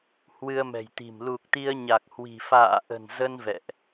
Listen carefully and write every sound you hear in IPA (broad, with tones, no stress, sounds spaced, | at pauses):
h w ɨ˧ ə̯ m ɛ̤˨˩ j t̪ i̤˨˩ m l u˨˩ k̚ t̪ i˧ ə̯ ɲ a˨˩ k̚ h w i̤˨˩ f a̰ː˧˨ ʔ ə̤˨˩ n z ə˧ n v ɛ̰˧˨ ʔ